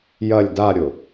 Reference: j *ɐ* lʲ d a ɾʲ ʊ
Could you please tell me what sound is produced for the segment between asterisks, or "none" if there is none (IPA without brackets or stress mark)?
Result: ɐ